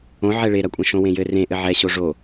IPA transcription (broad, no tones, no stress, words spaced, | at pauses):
õ ʕɛɭeɾɐkʷʼɐ̃ ʃõwẽjɘ rẽ ʔɘʕɛ ɕoʐo